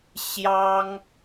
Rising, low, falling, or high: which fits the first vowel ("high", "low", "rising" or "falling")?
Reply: high